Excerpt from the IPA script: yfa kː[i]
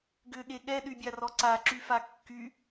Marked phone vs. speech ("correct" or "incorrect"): incorrect